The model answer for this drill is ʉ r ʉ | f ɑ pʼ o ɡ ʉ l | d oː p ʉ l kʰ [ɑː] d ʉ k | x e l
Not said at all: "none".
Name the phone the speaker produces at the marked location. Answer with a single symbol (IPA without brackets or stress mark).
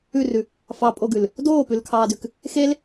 ɑː